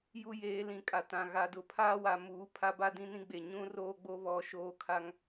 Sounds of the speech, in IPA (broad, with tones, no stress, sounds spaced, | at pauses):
j u˦ j eː˨˦ l ĩ˨˦ kʼ a˨ t ã˨ ɣ a˨ d ʊ˨ pʰ aː˦ w a˨ m uː˨˦ pʰ a˦ b a˦ d ĩ˦ n ĩ˦ ɡ͡b e˨ ɲ ũ˦ r oː˦ ɡ͡b o˦ β ɔ˨˦ ʃ oː˦˨ kʰ a˦ ŋ